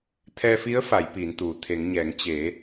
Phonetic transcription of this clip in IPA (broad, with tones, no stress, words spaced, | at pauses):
t̪ʰɛː˧fi˧˥ə̯ fa˩˧jpiː˩˧nt̪uː˩ t̪ʰe˩˧ŋɲɛː˩˧ŋ t͡ɕeː˩˧